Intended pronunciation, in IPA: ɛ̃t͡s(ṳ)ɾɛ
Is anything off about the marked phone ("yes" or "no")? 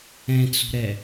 no